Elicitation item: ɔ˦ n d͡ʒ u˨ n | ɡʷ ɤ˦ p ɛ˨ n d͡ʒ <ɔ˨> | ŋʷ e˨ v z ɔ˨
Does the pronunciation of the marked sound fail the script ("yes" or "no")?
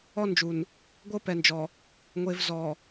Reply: no